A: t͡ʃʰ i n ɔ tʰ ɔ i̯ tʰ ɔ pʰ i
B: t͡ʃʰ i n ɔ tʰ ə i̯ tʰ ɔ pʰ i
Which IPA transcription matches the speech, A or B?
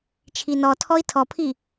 A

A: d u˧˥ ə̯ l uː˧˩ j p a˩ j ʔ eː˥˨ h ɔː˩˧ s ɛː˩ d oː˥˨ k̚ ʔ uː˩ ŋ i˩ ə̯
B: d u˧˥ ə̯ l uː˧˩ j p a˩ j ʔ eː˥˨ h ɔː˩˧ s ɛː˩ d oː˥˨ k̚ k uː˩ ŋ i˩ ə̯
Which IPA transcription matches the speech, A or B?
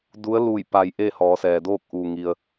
A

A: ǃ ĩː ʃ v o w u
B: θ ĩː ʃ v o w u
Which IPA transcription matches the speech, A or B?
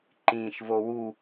A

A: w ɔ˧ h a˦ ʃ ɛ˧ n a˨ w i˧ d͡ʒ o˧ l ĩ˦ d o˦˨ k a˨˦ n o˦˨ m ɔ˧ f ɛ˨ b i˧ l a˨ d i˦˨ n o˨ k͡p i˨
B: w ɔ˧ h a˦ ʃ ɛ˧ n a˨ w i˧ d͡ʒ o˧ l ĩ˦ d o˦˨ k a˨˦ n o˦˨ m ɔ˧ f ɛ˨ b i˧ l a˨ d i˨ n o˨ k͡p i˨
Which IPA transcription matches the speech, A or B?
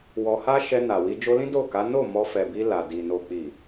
B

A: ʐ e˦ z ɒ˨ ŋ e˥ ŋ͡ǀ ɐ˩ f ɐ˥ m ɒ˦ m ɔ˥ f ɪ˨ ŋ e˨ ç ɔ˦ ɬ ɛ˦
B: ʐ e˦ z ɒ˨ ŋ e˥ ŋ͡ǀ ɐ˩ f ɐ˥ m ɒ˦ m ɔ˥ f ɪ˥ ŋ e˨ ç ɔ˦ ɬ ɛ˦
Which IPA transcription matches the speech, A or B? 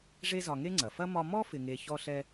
A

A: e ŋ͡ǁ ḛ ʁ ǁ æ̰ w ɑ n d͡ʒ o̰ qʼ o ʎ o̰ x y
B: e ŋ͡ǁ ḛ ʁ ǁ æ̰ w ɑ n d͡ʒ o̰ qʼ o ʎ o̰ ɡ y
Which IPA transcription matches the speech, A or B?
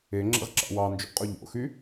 A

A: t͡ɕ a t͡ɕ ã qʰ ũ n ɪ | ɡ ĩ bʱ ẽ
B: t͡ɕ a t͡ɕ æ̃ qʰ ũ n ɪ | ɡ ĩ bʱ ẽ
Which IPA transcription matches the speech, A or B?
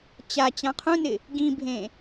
A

